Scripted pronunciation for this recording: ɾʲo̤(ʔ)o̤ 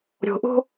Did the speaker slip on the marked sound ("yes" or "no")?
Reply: no